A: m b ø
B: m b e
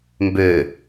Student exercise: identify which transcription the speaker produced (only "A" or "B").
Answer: A